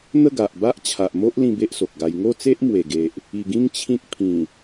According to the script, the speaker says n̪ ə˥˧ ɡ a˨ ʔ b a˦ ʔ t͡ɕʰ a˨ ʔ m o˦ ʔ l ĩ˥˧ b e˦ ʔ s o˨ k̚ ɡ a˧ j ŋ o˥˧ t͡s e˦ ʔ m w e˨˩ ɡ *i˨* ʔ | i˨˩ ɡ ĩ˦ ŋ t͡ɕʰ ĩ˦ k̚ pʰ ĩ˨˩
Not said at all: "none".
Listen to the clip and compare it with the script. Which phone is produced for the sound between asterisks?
e˨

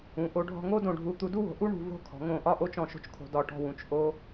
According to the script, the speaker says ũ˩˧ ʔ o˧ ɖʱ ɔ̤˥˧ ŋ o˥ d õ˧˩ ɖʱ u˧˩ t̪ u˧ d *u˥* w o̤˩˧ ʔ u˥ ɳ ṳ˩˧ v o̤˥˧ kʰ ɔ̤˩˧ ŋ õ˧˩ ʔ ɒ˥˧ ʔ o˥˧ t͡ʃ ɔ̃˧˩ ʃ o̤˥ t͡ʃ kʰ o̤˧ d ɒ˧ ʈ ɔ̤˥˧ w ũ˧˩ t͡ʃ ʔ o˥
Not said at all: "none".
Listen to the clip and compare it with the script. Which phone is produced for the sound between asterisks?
u˥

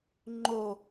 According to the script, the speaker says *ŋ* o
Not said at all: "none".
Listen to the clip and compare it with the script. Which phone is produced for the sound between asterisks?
ŋ͡ǃ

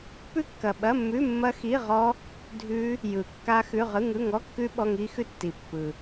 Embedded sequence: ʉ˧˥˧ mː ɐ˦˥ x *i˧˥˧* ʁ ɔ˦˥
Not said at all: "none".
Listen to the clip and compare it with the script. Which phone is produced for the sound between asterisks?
i˧˥˧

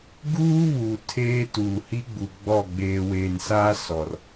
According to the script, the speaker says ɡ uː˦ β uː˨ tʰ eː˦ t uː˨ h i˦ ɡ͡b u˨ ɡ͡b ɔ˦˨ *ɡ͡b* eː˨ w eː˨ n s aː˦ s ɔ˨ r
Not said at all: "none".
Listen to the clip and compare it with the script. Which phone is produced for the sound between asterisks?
ɡ͡b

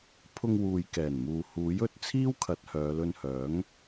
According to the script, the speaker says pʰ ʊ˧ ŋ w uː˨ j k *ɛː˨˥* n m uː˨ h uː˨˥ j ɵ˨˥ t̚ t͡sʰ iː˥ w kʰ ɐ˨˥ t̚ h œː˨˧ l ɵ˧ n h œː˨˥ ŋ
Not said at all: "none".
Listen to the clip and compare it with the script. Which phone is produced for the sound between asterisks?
ɛː˨˩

